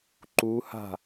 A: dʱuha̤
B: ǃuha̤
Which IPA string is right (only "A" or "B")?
B